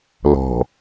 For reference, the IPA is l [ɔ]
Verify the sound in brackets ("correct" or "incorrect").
incorrect